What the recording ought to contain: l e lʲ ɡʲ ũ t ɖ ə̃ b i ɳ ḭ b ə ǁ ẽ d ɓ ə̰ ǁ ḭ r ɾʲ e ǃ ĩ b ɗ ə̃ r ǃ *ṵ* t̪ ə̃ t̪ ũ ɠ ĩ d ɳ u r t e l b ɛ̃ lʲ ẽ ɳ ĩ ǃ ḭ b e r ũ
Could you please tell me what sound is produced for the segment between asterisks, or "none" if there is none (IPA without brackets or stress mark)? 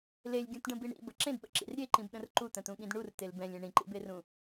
u